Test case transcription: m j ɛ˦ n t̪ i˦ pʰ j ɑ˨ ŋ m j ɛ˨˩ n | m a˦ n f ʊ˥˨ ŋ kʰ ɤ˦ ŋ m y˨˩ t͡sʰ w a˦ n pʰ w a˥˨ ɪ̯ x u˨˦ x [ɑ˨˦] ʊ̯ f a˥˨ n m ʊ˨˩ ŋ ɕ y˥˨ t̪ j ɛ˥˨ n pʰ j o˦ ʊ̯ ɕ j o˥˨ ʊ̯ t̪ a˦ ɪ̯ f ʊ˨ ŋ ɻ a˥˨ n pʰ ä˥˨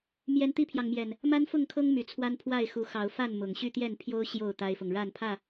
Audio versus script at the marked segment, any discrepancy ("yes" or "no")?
no